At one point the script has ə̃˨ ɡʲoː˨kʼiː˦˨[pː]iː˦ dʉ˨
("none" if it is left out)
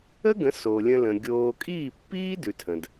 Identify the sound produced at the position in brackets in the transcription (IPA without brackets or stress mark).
pː